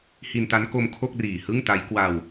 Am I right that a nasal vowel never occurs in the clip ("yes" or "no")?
yes